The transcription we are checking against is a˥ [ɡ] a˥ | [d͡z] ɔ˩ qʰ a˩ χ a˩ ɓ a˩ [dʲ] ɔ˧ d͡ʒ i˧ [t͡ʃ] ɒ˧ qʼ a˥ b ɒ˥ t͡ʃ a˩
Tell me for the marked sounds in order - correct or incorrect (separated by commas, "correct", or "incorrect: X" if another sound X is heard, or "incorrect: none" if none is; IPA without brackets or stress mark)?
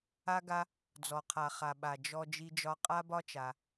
correct, correct, incorrect: d͡ʒ, incorrect: d͡ʒ